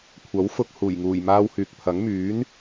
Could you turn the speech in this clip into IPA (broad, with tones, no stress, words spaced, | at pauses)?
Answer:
kʷʰɐ˨˥w fʊ˧k̚ huː˨˩jŋuː˨˩j maː˧w hyː˨k̚pʰɐ˨˥ŋ myː˨˥n